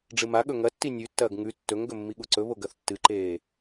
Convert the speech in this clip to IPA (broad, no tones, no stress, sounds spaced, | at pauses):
ɖ͡ʐ ɨ m a ɠ ɵ ŋ ɐ tː i nʲ ʉ tː ɐː ɡ ŋ ʉ tː ɵ ŋ ɡ ɵ mː i ɠ u ǀ ɵ β o ɡ ɐ θ tː ɨ ǃ eː